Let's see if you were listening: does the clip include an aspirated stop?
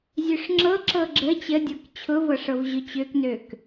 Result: yes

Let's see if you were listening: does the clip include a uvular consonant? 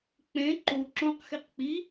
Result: yes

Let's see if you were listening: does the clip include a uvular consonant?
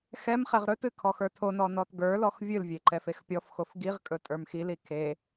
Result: yes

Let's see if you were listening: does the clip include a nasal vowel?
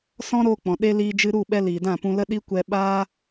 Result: yes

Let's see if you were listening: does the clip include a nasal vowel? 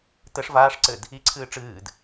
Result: no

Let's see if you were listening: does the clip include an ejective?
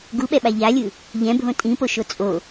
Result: yes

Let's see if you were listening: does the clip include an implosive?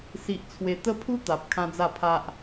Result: no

